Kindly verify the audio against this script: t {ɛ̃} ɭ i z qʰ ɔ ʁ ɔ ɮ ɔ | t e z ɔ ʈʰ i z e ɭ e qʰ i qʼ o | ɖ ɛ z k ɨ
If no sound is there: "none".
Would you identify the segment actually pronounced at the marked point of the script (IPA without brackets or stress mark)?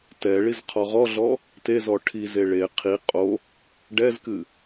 ɛ